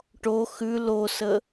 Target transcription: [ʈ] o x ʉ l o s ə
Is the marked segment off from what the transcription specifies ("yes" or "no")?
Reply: no